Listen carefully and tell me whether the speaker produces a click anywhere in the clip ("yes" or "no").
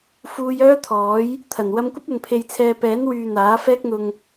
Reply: no